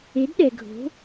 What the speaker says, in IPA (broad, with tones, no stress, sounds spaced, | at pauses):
e˨˥ d ɗ ɛ˨ ɡʱ o̤˨˥